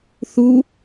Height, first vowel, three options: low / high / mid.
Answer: high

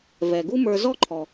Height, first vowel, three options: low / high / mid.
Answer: mid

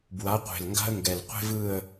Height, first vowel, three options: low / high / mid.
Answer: low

